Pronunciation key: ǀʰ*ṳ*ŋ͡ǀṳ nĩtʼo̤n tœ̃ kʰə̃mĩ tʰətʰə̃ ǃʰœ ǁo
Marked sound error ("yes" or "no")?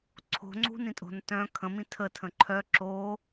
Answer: yes